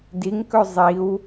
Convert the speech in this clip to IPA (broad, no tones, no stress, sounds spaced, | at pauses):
d i ŋ k ɵ zˤ i w